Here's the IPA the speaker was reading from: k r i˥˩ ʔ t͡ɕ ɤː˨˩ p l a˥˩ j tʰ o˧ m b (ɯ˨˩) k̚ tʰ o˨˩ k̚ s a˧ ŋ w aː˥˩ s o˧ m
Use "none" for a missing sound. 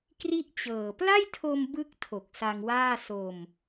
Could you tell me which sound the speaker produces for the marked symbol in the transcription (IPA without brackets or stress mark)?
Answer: ɯ˦˥